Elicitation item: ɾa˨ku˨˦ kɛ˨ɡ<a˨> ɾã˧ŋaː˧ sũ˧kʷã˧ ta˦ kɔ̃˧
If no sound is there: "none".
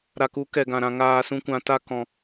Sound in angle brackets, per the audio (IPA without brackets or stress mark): ã˨